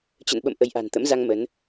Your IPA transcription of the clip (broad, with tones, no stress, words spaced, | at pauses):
t͡ɕə̰˧˨nɓə̰˧˨m ʔə˨˦jʔa̤˨˩n t̪ə̰˧˥mza˧ŋ mə˨˦n